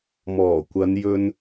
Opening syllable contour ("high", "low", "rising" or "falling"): low